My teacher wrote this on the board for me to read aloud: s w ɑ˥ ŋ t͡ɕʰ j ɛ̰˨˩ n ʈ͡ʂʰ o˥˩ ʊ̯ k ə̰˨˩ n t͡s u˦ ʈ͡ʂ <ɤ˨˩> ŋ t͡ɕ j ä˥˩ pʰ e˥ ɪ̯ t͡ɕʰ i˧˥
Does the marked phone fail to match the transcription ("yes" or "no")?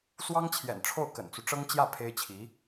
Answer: yes